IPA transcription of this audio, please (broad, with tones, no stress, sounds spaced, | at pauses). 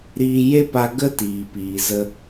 ɾ iː˧ j e˦ p a˧ ɡ ə˦ t iː˨ p iː˨ z ə˧